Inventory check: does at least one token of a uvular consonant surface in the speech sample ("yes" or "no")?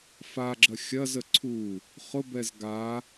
yes